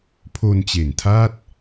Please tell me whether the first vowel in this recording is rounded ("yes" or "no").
yes